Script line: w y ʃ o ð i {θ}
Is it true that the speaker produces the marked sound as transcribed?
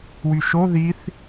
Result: yes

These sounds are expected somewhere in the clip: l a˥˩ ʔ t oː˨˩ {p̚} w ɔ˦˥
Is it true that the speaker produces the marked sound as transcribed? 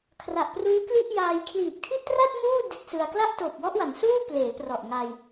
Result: yes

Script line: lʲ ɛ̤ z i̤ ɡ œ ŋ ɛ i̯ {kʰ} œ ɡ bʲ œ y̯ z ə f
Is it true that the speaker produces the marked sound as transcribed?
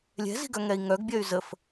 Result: no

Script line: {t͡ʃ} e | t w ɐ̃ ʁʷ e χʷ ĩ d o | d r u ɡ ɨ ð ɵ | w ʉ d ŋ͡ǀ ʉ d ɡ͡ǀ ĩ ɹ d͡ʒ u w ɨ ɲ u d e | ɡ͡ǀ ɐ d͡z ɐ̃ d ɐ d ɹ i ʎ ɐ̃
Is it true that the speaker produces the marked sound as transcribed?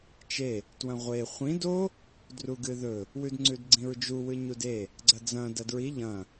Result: yes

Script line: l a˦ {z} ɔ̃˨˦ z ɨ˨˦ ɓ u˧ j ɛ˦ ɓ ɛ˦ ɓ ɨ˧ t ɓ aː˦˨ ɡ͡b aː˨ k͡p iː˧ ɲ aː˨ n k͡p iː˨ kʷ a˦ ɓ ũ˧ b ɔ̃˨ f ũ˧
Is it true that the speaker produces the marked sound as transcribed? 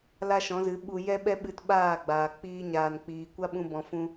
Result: no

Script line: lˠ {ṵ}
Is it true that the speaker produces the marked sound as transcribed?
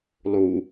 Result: no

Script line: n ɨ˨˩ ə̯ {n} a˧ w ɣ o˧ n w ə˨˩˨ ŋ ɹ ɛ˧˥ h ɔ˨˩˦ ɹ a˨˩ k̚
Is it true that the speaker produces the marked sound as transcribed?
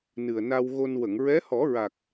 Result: yes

